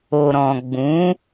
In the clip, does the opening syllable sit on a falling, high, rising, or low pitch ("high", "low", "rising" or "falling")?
low